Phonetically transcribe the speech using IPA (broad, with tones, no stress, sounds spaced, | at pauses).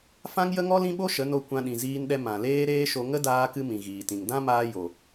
f ã˦ ŋ j ə˦ ŋ ɔ˦ l ĩ˦ ɓ o˦ ʃ ə˨˦ n o˧ kʷ ã˧ ɗ ĩ˨ z iː˧ n ɗ ɛ˧ m ã˨ l eː˦ ɾ eː˦ ʃ o˧ ŋ ə˦ d aː˧ k ɨ˧ m ĩ˨ ɣ iː˨ t ĩ˨ ŋ d ã˦ m aː˧ j o˨